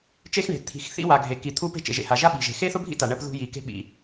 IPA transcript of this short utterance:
t͡ʃe˥xɳe̤˩ t̪ʰi̤˩xθḭ˥wa˩ ɡʱe˩ki˩ t̪ʰu˥pe̤˥ t͡ʃḛ˩ʒḛ˩ha˩ʒa˥ ɓi̤˩ʒe̤˩ xe˥θʊ˥bʱḭ˥ta˩ ɳɜ˥p ðṳ˥ji˩ ke̤˥ɓḭ˩

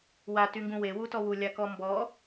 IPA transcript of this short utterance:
watyŋɡũ wewutɔ wulʲakɔ mbɔ

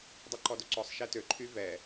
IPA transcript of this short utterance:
dˤuǃɔdoǀɔsˤ ʃɛtø ǃʰyvɛ

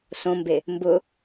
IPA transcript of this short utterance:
sõmbe | mbʊ

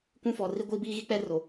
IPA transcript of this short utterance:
kʷũ˦fɔ˨ ri˦ɡʷiː˦biː˦ɣi˦ k͡pɛ˦ro˨

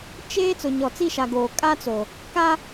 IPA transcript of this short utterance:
t͡ʃeː˦ t͡sʊ˨ɲɔ˨t͡si˦˨ʃa˨ ɡoː˨kʼa˦t͡so˨ | ka˦

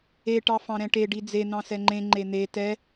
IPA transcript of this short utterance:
eʈɑ fɑ̃ɾɛ̃ʈeɖi d͡zen̪ɑ̃ sɛŋ͡ǃẽŋ͡ǃe n̪e tɛ

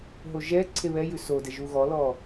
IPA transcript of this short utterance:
ɦoʒɛ ǀʰeβɛjʉ sodɛ ʒuɣɔlɔ

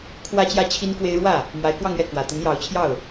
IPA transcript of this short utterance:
kʰwä˥t͡ɕjä˥ t͡ɕʰi˥nkwe˥ɪ̯ ɻwä˥˩ | mwa˧˥ɪ̯kwɑ˥˧ŋɥɛ˥˩ kwä˨˩ t̪ə˧˥njɑ˧˥ʊ̯t͡ɕʰjɑ˥˩ʊ̯

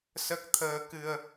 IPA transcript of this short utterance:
sə˦˥k̚t̪ʰəː˧kɨ˧ə̯

